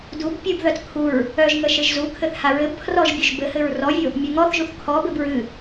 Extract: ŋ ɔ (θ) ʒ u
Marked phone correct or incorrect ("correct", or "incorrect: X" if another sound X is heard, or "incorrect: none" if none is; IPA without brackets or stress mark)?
correct